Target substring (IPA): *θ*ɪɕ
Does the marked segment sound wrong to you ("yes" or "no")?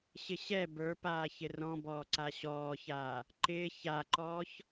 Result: yes